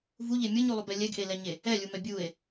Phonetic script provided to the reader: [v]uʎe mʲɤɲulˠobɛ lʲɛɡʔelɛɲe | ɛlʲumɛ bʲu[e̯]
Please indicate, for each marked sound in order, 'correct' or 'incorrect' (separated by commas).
correct, correct